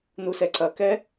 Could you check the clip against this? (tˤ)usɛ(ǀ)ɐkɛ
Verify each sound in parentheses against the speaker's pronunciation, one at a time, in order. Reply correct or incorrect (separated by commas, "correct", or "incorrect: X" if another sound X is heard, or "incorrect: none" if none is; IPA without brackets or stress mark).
incorrect: n, correct